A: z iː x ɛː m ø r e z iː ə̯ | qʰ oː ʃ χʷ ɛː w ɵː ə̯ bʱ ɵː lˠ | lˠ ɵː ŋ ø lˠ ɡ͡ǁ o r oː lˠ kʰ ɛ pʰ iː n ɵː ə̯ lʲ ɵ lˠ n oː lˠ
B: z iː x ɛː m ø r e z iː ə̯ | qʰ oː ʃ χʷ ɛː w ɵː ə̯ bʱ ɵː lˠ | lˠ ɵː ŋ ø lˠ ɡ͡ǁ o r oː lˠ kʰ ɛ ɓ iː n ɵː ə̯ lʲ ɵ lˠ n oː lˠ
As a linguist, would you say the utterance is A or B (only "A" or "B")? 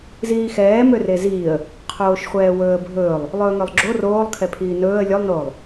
A